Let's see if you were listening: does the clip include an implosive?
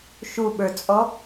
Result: yes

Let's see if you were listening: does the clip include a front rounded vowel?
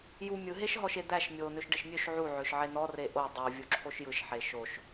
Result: yes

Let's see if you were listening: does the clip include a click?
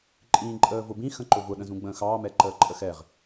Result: yes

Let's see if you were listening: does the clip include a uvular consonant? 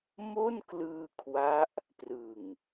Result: no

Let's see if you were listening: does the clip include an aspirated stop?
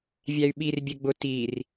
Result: no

